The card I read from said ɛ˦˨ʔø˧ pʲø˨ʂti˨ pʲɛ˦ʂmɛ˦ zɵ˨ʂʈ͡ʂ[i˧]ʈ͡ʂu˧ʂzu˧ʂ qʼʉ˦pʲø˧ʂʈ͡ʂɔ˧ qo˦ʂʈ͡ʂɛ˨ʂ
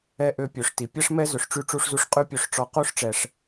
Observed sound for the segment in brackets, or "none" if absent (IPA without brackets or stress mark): y˧